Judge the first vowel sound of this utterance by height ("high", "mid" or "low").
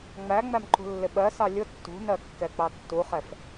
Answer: low